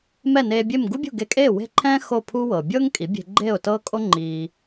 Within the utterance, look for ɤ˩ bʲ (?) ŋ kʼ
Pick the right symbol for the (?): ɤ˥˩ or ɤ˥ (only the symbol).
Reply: ɤ˥